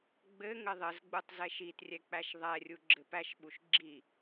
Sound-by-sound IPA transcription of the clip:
ɡ͡bɘ ŋɘðˤɘzɡ͡butˤ zɛʃitrʲɛ k͡pæʃðˤɛrʲu ɡ͡ǁɘpæʃɓuʃ ɡ͡ǁi

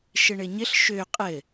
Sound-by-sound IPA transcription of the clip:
ʃɘɳɘɲɘɬ ʃø qʼɘ

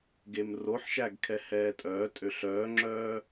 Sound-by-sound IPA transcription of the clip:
ɡemroħʃæɡ kʰɛhɛːtʼœː tʼøɬœːŋ͡ǁœː

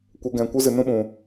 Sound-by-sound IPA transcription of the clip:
kʷə˨˦ɡɛ̃˨ kʷɨ˦zɨ˨ nũ˦ɓũ˨

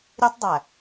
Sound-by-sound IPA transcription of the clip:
ɾʲe˦tˤdˤæ˨

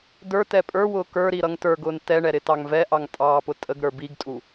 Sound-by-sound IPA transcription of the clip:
də˞tɛ pʼə˞wʊː kə˞ɾi ɾʌŋtə˞ɡʊːn tɛɳɛ ɾɪtɑŋvɛʔɑŋ tʼɑːpʊtʼəɡɾə˞ biɡtʼu

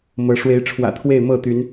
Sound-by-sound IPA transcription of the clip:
mɤ˨˦ ʂwe˨˦ɪ̯ʈ͡ʂʰwä̰˨˩ t̪ʰwe˥˨ɪ̯ mɤ˥˨t̪y˨˦n

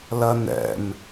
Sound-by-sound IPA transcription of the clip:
lɐnɛ̰m

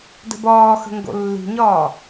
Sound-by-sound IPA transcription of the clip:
də̤bɒːxə̤ ŋɡo̰lːi̤ɲɒː

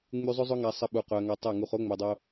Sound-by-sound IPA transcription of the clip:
ŋ͡my˧zˤɵ˦ zˤʊ˦ŋa˧sˤə˧ ɓu˨qʊ˨ɐ̯ ŋa˧tˤɛ˦˨ŋu˧χ o˦ŋ͡mɵ˨dˤo˧

